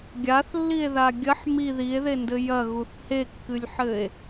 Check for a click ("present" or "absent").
absent